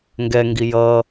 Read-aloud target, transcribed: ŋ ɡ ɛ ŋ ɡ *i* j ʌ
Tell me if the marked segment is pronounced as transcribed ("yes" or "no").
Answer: yes